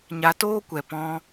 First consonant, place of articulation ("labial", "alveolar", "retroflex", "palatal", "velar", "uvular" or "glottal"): palatal